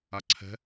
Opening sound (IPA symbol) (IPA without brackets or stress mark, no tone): a